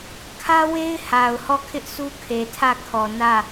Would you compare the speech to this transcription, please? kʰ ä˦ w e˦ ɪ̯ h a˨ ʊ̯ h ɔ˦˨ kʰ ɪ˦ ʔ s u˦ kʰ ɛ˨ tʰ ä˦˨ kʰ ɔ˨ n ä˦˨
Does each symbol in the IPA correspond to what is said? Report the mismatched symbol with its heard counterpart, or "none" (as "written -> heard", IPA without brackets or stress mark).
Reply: ɛ˨ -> e˨